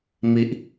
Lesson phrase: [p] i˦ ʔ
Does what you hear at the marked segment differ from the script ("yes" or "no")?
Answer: yes